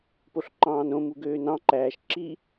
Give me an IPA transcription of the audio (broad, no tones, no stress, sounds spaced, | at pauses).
p o ɬ ǃ ɑ̃ː n õ m u ɡ øː n ɑ̃ ǃ æː ʃ ǁ i